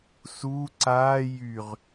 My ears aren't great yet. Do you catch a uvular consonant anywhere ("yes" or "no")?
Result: yes